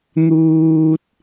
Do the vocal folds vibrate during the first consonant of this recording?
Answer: yes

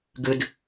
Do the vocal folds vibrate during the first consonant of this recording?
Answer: yes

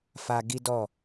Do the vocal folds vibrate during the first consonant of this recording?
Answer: no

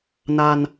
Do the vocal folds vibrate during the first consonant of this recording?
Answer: yes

